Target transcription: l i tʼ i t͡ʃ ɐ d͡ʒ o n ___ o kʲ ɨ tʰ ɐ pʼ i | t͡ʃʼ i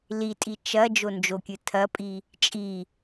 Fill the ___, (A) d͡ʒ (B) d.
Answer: A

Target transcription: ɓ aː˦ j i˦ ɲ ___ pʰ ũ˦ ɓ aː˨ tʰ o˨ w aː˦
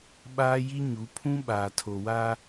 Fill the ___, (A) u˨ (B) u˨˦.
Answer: B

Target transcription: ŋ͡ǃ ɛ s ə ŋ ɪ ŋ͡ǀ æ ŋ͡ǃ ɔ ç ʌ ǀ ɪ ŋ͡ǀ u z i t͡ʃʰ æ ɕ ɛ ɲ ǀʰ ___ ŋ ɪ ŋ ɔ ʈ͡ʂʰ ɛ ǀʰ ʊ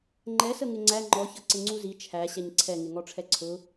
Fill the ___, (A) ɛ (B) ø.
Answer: A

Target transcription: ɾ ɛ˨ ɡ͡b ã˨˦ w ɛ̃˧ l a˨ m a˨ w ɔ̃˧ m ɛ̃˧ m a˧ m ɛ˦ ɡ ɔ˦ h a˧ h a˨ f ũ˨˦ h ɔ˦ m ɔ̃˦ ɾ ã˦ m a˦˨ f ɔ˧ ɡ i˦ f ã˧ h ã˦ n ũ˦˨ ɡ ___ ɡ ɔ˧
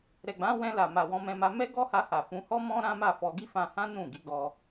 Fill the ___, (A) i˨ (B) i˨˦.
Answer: B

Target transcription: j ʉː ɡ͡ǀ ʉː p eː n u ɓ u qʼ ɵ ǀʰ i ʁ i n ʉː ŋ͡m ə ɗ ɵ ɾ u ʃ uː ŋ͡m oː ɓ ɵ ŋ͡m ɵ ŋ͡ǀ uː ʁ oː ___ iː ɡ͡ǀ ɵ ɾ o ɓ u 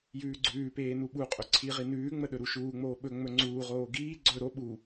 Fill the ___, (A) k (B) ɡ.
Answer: B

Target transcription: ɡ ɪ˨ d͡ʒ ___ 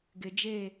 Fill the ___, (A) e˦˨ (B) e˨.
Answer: A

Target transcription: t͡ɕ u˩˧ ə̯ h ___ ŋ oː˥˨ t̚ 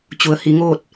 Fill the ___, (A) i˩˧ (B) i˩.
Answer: A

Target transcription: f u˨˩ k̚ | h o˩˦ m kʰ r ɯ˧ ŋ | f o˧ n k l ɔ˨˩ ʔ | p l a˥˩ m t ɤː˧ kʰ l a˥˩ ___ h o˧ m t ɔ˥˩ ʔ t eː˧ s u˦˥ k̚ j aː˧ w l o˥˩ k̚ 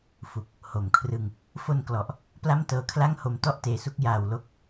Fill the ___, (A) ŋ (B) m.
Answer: A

